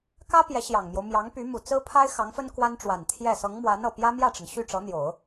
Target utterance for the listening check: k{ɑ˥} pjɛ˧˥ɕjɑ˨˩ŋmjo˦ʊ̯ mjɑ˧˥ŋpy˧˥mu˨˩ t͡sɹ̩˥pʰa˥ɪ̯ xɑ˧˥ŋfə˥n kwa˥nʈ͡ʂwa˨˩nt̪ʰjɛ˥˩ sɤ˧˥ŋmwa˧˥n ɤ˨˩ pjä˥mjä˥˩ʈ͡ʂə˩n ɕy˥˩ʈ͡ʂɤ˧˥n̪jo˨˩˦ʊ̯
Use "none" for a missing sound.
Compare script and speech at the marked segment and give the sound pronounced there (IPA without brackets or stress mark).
ä˥